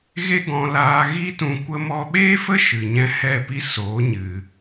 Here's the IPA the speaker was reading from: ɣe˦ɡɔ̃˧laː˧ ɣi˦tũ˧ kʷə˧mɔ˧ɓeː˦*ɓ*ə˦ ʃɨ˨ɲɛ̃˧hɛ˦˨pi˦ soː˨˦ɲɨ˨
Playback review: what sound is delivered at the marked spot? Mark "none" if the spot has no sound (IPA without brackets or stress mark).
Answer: f